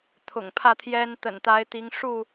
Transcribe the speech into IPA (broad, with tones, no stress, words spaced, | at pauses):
t̪ʰʊ̰˨˩ŋpʰä˥˨t̪ʰjɛ˦n t̪ə̰˨˩nt̪a˨˦ɪ̯t̪i˨˦ŋ ʂu˥˨